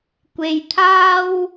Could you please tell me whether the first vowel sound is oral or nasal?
oral